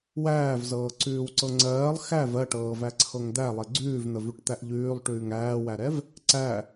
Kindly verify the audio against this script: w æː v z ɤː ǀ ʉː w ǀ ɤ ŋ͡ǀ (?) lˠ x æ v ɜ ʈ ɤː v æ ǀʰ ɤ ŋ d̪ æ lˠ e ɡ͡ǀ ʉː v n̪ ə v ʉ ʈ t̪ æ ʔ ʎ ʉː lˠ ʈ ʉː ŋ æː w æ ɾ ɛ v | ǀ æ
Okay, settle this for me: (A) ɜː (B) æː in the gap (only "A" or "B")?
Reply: A